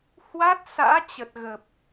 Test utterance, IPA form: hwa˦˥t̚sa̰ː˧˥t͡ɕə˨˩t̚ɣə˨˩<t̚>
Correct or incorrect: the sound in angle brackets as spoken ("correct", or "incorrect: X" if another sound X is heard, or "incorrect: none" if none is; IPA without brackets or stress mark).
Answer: incorrect: p̚